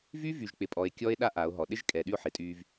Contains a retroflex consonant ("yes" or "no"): no